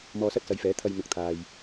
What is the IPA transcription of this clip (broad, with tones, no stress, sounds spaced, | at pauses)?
m ɔː˧ s ɐ˥ t̚ s ɐ˨˧ j f ɛː˨˥ t̪ʰ ɐ˧ j n̪ ʊ˨ k̚ t̪ʰ aː˨ j